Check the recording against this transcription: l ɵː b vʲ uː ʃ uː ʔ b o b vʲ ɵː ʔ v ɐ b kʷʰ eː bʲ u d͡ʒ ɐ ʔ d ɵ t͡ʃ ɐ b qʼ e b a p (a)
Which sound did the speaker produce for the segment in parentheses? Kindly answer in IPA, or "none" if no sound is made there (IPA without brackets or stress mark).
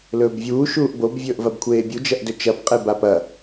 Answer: ɐ